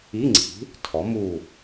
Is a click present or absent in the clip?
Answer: present